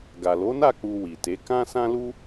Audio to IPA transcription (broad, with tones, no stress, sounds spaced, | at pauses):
ɡ a˨ l o˨˦ n a˦˨ k͡p u˧ w i˨ t e˨˦ k ã˦ s ã˦ l u˦